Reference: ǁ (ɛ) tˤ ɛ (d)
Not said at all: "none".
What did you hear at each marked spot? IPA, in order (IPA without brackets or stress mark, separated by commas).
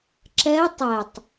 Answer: ɛ, tˤ